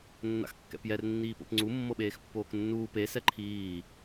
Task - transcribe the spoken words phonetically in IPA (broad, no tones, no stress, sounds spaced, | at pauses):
nː a̰ x kː ɛ̰ p j ɛ r nː iː p o̰ p ŋ͡ǀ u mː ɤ ɓ eː x pː oː k nː uː p e s ɛ ǃʰ iː